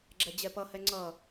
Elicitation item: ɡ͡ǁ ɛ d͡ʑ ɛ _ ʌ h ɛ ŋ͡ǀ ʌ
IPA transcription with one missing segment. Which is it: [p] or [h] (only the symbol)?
p